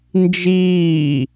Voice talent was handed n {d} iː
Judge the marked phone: incorrect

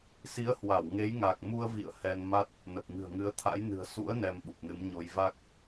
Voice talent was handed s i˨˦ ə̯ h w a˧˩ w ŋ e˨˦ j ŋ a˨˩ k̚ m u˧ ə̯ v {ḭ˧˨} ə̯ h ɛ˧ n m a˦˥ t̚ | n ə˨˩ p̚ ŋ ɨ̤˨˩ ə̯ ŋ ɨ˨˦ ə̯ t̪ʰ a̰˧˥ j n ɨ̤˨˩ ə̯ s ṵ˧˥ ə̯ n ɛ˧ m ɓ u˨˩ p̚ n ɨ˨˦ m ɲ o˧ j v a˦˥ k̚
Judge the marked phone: correct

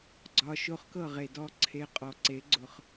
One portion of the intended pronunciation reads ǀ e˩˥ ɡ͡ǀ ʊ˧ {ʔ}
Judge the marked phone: incorrect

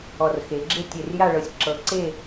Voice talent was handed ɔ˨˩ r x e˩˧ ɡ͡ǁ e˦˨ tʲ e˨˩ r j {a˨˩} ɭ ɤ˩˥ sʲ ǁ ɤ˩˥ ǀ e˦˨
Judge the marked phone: incorrect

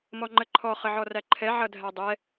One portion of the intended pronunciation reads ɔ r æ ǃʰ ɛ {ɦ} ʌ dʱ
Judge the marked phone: incorrect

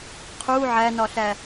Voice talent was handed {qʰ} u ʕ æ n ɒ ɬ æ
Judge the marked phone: correct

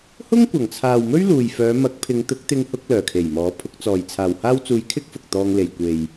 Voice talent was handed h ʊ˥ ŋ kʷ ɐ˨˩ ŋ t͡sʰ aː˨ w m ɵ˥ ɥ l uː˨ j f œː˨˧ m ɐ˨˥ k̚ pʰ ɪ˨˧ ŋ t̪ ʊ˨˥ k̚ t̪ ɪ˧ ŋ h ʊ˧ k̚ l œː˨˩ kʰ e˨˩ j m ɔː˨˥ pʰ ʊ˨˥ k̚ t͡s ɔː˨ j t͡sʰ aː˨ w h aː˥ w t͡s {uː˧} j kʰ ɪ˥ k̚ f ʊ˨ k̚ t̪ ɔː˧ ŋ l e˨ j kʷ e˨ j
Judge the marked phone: correct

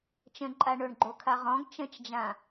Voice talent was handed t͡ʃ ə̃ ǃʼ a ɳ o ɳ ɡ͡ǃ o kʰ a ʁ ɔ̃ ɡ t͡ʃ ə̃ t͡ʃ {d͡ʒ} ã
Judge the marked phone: correct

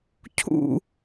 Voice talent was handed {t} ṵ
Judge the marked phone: incorrect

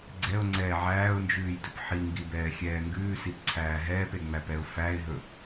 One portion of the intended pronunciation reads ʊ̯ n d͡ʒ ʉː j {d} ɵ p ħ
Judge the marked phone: correct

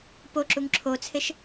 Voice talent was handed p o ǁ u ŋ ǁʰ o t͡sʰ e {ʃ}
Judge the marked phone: correct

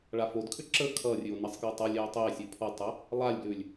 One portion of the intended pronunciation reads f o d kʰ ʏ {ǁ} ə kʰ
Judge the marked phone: correct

